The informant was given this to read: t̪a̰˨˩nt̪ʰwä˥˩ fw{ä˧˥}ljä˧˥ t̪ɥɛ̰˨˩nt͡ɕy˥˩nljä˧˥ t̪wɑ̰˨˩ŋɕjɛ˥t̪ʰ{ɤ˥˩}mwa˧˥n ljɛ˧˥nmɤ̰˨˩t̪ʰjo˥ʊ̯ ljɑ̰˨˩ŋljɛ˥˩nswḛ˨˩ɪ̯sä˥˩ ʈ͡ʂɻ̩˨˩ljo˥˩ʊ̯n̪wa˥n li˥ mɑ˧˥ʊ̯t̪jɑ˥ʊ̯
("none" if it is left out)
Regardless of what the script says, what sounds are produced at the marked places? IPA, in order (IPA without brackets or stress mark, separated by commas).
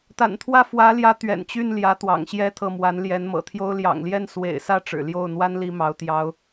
ä˧˥, ɤ˥˩